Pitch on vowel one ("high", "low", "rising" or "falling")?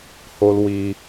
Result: high